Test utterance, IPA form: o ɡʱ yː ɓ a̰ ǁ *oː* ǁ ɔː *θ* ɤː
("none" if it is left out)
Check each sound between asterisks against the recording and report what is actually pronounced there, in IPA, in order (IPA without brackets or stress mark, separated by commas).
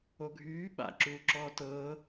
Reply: uː, t